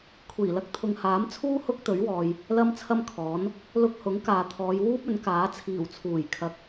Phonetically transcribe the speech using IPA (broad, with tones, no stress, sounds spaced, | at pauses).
kʷʰ iː˨˩ l ɐ˧ k̚ t̪ʰ ʊ˨ ŋ h aː˨˥ m t͡sʰ uː˥ h ʊ˥ k̚ t̪ ɵ˨˥ ɥ w ɔː˨ j | l ɐ˥ m t͡sʰ ɐ˥ m kʰ ɔː˨˥ n | l ʊ˧ k̚ h ʊ˨˥ ŋ k aː˨ t̪ʰ ɔː˨˧ j w uː˥ p̚ ɵ˨˥ n k aː˨˥ t͡sʰ iː˨˩ w t͡sʰ uː˨˩ j kʰ ɐ˨ k̚